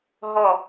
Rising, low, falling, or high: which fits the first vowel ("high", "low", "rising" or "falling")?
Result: falling